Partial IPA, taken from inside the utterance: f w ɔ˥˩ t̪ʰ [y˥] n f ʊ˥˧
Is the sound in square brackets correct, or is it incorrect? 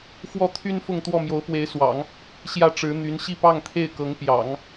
correct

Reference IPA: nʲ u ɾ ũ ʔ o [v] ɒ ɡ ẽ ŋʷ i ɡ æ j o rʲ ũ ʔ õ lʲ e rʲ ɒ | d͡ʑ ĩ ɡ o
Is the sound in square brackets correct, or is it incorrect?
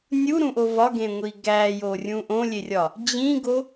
correct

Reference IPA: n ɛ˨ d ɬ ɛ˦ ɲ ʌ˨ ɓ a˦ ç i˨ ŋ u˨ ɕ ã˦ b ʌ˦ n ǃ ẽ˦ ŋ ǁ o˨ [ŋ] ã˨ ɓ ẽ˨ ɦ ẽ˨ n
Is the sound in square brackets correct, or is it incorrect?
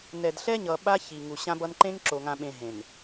correct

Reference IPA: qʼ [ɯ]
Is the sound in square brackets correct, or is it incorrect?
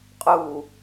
incorrect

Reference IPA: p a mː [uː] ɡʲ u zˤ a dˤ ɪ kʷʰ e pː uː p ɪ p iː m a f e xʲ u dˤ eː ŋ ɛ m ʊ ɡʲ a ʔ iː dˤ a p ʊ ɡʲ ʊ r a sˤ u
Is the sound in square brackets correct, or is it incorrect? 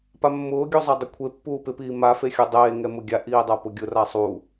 incorrect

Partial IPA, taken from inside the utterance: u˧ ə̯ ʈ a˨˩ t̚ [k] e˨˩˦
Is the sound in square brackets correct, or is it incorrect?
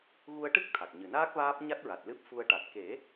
correct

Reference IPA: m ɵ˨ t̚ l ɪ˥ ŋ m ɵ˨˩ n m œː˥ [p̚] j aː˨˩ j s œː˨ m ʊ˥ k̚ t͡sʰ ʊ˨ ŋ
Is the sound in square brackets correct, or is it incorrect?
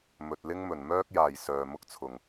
incorrect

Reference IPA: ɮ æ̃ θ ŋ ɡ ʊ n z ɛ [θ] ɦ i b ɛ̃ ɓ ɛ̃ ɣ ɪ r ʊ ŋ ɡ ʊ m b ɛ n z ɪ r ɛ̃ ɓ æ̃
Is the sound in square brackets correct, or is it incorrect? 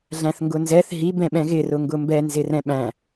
correct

